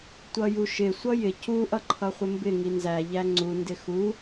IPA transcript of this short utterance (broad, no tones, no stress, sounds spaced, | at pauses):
tʷ ʌ j u ʃ ɪ sʷ ʌ j ɪ c u ʔ ʌ ǃʰ ʌ χʷ ɪ m b ɪ ŋ i n z æ ʎ æ ŋ͡ǀ u n d ɪ x u